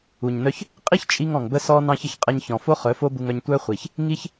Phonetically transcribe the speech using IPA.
u˨ɲnœ˦ç | qʼi˦çt͡ʃʼi˧ŋ ɔ̃˨ŋbə˦sɔ˦ nɑ̃˦çə˨ç qʼɛ˧ɲçɔ̃˨fo˦ χœ˨˦fo˦bu˧ŋœ˧ɲ tʷœ˦χʷi˨ç | ŋi˦ç

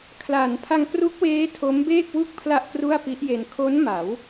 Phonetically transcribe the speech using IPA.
kʰla˩˦npʰa˧ŋkru˦˥k̚weː˦˥ tʰo˦˥mbeː˥˩k̚wu˥˩k̚ pʰla˥˩ʔkru˥˩a̯pi˦˥ʔje˧n kʰo˦˥n ma˩˦w

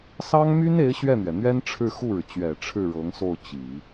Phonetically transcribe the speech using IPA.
sɑ˥ŋmy˥ne˧˥ɪ̯ ɕɥɛ˥˩n̪ɥɛ˩n̪ɥɛ˥n ʈ͡ʂʰɻ̩˥˧xu˥˩ɻɻ̩˩ t͡ɕɥɛ˨˩ ʈ͡ʂʰɻ̩˥˩ɻɤ˧˥ŋso˥˩ʊ̯ t͡ɕi˨˩˦

